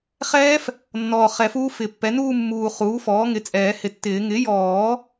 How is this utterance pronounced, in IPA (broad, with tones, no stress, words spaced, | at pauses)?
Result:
χɛː˦˥f | nːɔː˨˩ χɛ˨˩˦fuː˦˥fɪ˨˩˦pːɛ˩˥ nuː˥˧mːuː˨˩ χuː˩˥fɔː˩˥ŋɪ˩˥t͡sʼɛː˨˩˦ hɪ˨˩tːɪː˨˩˦ ŋɪ˩˥jɔː˨˩˦